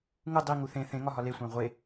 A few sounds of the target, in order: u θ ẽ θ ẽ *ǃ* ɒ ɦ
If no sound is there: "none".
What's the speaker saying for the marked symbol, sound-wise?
ŋ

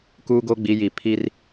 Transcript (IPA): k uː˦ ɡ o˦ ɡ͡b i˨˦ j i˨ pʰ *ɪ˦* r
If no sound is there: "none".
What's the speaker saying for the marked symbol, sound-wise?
i˦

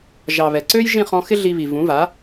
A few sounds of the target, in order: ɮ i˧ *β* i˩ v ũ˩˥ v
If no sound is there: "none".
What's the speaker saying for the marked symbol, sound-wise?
β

